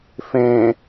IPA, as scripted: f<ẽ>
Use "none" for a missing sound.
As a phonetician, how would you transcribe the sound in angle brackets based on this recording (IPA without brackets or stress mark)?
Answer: ẽ